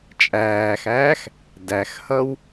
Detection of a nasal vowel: absent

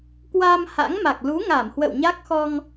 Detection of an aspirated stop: absent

